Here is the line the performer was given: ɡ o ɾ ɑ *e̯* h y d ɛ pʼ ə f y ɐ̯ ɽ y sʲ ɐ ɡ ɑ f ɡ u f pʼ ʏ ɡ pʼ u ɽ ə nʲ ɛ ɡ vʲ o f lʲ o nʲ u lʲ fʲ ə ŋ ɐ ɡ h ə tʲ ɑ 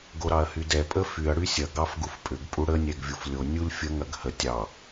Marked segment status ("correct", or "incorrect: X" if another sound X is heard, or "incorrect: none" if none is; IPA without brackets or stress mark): incorrect: ɐ̯